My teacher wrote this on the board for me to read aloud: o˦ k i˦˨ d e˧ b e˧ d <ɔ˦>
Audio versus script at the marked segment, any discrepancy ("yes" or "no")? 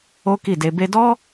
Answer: no